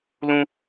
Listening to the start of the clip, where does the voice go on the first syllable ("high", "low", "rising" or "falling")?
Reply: high